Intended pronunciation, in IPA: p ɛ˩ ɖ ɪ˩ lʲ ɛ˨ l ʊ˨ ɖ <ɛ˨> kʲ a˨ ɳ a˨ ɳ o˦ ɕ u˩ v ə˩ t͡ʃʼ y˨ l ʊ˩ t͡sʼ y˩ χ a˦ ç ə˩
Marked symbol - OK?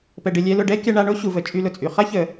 no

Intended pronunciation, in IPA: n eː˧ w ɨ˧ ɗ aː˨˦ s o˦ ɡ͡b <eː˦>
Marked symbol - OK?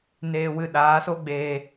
no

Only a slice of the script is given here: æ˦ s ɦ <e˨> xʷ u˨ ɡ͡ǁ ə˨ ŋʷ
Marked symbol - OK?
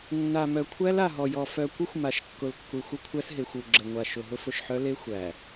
yes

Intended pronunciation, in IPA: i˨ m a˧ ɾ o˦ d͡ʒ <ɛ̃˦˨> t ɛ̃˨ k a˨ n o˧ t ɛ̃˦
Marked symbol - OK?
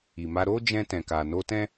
no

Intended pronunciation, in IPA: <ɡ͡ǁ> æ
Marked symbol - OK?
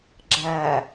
yes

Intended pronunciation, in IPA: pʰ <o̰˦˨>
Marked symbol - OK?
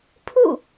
no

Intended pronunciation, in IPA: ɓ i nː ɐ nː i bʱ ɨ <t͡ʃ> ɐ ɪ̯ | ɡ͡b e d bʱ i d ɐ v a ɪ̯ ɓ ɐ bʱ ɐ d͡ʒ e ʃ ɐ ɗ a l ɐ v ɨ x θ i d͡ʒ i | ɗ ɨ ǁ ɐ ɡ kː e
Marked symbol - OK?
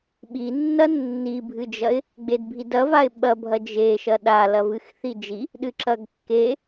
no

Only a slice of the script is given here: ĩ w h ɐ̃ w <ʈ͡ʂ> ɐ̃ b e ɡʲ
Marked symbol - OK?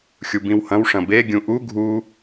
no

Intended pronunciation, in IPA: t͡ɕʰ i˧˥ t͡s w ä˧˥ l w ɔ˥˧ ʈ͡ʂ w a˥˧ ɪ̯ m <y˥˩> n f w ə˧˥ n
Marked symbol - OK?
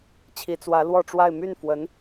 yes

